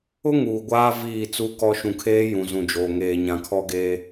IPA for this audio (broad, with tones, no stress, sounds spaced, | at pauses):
ʊ˦ ŋ uː˨ ɡʷ aː˦ v iː˦˨ t͡s u˦ k ɔ˦ ʃ ũ˨ kʰ eː˦ j ũ˨ z ũ˨ d͡ʒ oː˨ ŋ eː˨ ɲ ã˨ kʰ ɔ˦ ɡ eː˦